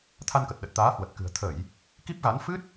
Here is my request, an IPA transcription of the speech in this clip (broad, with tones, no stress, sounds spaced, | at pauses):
t̪ʰ a˧ n k ə˨˩ t̚ ɗ ə˨˩ t̚ t̪ aː˨˦ h w ə˨˩ t̚ k ɨ̤˨˩ ə̯ t̪ʰ ə˧˩˨ j | k i˦˥ p̚ ɣ a˨˦ n f ɨ˦˥ t̚